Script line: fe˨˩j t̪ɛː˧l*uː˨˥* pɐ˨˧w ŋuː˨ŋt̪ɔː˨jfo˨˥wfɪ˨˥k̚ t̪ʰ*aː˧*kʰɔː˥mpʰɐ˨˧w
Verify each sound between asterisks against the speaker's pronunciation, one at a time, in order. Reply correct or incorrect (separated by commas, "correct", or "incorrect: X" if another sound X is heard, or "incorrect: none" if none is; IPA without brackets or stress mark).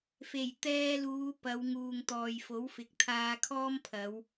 incorrect: uː˨˧, correct